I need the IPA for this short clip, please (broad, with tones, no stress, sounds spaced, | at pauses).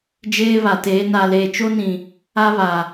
d͡ʒ eː˦ β a˨ t eː˨˦ n a˨ l eː˨ t͡ʃ o˦ n ĩ˨ | a˦ β a˨